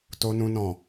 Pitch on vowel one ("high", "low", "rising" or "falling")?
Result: low